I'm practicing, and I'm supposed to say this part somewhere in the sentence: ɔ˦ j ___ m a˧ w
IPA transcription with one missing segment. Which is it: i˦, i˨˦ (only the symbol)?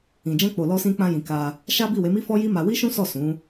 i˦